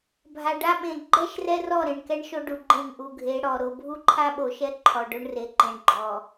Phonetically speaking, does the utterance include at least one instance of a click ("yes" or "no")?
yes